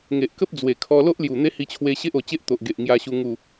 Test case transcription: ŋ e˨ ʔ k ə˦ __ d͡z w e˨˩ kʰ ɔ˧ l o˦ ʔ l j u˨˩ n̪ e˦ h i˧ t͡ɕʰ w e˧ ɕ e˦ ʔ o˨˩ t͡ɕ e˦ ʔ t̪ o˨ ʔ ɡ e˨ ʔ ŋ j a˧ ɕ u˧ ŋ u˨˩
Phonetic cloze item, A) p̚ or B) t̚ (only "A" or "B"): A